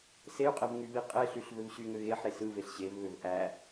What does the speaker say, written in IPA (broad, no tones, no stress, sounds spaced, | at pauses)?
s e y̯ qʼ e v ŋ y β i qʼ e ɬ y ɬ v ø v ɕ y ŋ ø ɣ e ħ ɾ e s ɯ v e ɬ ɕ e v β ø v ʔ æ